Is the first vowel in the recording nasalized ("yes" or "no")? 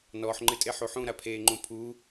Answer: no